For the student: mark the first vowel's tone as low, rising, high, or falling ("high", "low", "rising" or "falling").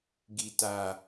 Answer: low